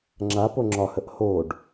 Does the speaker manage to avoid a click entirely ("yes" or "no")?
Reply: no